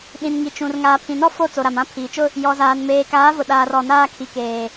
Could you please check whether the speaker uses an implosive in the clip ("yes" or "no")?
yes